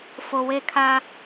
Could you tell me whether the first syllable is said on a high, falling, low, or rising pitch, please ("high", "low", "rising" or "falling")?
low